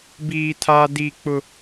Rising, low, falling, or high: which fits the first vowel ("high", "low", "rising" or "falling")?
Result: high